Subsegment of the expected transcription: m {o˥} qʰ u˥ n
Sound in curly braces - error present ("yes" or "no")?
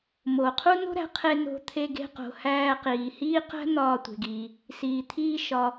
yes